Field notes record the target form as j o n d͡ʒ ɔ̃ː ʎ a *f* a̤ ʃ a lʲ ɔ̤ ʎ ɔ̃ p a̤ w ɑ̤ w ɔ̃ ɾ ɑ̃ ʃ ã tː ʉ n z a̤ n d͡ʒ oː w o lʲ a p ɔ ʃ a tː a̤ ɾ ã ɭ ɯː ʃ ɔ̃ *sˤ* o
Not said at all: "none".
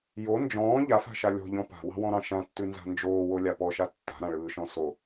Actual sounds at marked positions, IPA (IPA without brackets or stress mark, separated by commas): f, s